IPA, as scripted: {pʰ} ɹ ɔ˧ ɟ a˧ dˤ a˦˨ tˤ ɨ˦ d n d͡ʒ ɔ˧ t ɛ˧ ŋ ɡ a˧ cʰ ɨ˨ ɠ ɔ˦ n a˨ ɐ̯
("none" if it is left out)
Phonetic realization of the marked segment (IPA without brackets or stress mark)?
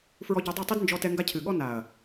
f